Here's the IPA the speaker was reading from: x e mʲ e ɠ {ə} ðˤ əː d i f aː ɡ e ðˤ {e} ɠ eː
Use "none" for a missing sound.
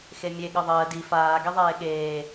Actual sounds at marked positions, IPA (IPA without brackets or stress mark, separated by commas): ə, eː